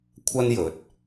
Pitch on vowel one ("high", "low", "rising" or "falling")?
high